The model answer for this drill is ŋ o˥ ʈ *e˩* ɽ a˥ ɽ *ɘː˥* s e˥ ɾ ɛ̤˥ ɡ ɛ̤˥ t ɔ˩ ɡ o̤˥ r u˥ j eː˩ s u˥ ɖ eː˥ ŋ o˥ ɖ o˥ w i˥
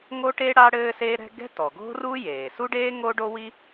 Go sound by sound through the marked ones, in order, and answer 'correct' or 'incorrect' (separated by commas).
incorrect, correct